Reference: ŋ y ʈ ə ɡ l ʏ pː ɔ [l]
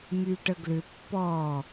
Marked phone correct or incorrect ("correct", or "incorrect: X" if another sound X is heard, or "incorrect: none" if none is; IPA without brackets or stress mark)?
incorrect: none